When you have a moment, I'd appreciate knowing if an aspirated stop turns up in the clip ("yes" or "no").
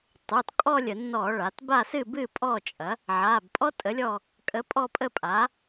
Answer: no